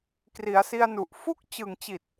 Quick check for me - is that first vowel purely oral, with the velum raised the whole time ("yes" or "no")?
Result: yes